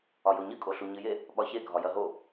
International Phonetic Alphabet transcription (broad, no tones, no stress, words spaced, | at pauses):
ɒjoɲɨ kʼoɬuɲɨje | ɓɒçe ɡʱɒjɐɦo